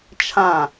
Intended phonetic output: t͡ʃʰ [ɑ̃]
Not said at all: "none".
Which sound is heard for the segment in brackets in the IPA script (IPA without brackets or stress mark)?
ã